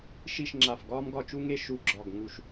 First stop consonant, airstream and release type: click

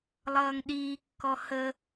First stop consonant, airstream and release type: implosive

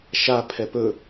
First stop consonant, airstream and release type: aspirated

